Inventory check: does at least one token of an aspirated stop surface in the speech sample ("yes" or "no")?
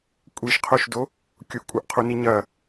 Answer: yes